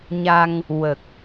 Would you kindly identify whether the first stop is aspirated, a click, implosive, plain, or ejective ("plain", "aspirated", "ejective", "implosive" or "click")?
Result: plain